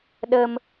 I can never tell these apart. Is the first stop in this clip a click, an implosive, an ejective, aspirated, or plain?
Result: implosive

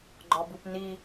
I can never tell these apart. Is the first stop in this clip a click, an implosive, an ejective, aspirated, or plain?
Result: click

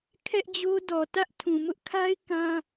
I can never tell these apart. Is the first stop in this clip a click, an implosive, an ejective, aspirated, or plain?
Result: aspirated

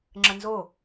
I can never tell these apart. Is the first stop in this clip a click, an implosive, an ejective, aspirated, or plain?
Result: click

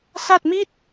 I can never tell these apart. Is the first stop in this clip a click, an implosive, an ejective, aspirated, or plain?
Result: plain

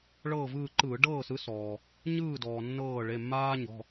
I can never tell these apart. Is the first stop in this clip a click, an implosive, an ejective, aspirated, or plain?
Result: click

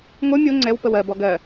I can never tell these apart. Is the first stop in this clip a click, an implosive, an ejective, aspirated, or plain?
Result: click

